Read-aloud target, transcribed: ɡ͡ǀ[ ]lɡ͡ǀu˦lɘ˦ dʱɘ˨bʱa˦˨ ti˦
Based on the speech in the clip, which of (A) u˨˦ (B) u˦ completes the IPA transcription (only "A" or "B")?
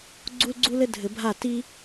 B